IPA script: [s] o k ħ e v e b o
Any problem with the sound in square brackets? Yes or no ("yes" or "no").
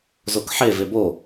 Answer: yes